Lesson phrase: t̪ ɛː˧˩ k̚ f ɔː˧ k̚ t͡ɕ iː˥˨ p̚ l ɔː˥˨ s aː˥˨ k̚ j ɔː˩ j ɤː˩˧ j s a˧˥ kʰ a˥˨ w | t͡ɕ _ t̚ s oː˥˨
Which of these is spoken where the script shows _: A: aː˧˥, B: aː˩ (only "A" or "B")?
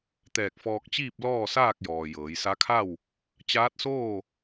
A